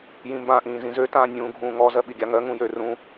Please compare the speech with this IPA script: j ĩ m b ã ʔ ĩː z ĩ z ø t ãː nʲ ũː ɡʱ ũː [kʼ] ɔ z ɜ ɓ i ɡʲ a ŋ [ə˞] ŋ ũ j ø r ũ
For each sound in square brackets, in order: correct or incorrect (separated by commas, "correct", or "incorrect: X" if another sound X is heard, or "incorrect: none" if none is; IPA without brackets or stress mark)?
incorrect: ŋ, incorrect: ɜ